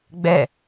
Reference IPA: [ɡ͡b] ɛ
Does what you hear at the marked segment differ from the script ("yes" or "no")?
no